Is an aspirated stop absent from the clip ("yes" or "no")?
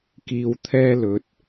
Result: no